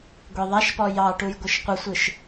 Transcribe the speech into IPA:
ɡʷ e ðˤ a ʃ p ɔ j ɑ ʈ u j ɡʷ ɯ ʃ qʷ ə sʷ ɯ ʃ

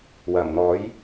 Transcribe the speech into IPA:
w ɐ˨˩ m n̪ ɔː˨˥ j

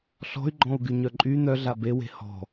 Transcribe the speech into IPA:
ɬ ɔ̤ y̯ ɡ͡ǃ ɔ̃ u̯ ɡ y ɲ œ ǃʼ y n̪ œ ɮ a b e w e̤ h ɔ̤

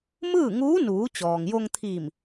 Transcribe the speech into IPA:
m ɯː˥˨ ŋ uː˧˥ n uː˩˧ t͡ɕ ɔː˩ ŋ j o˧ ŋ t̪ʰ iː˧˩ m

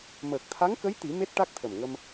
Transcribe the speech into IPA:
m əː˨˩ k̚ t̪ʰ a˧˥ ŋ k ə˧˥ j t̪ i˨˩˦ m e˦˥ t̚ ʈ a˦˥ k̚ t̪ʰ ə˨˩ m ŋ ə˧ m

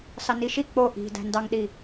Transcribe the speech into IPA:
s ɑ n i ʃ i k͡p o ʔ i̤ d æ̤ n d ɑ ŋ ɗ i

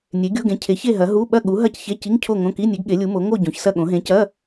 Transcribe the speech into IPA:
nʲ e˨˥ ɡʲ o˧˥˧ ɡ ẽ˨˥ cʰ e˨˥ ç e˥˧ ɦ ɐ˨˥ ɦ u˧˥˧ ɓ ɐ˥˧ ɠ u˨˥ ɦ ɐ˥˧ c ç e˧˥˧ c i˧˥˧ ŋ cʰ o˥˧ ŋ õ˧˥˧ k i˧˥˧ nʲ e˨˥ ɡ ɠ e˨˥ lʲ u˨˥ m o˨˥ ŋ o˥˧ ɟ õ˨˥ ç s ɐ˥˧ ɠ õ˨˥ ɦ ẽ˨˥ c ɐ˧˥˧

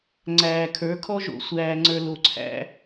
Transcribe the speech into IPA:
ŋ͡ǀ æː˨ kʰ ə˞˨˦ kʰ ɔ˦ ʒ o̰˨ sʷ æː˨ ŋ͡ǀ ə˞˨ l o˨ ǀʰ æ̰˦

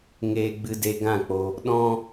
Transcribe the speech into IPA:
ŋ eː˧ ɡ͡b ɨ˧ d e˧ ɡ ã˦˨ k͡p o˧ | ɗ ɔ̃˦

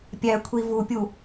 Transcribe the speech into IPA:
pʲ æ kʷʰ i v u pʲ u

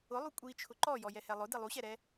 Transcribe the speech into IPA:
ʊ lˠ u kʷʼ i t͡ʃʰ ʊ ǃ ɔ j ɔ j ɛ h ɛ lˠ ʊ d i lˠ u ɕ ɛ ɾ ɛ

